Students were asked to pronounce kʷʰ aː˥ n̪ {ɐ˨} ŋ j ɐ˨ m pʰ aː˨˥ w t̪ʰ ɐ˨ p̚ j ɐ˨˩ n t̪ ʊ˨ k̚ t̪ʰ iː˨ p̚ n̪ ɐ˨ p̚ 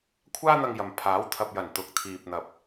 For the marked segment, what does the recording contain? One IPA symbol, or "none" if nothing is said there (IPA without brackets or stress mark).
ɐ˧